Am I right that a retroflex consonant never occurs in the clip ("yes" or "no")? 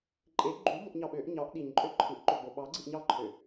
yes